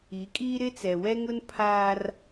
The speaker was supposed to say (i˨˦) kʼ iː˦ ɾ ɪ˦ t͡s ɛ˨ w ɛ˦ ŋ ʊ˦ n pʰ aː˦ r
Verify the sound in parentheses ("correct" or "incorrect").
correct